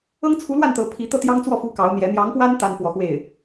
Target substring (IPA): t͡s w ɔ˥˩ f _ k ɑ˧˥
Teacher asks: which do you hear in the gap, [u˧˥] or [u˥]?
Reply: u˥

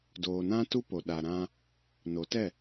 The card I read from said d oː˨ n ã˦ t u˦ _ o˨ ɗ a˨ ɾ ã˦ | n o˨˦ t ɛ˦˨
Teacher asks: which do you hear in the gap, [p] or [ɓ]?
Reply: p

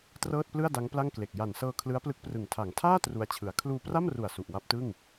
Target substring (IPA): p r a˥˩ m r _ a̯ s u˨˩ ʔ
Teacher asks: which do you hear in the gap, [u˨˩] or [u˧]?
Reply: u˨˩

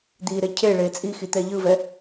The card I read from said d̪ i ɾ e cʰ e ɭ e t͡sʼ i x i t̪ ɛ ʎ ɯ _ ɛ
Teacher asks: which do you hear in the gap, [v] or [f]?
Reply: v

